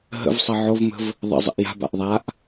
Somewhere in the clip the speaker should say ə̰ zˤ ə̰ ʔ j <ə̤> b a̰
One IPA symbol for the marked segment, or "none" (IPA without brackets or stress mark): a̤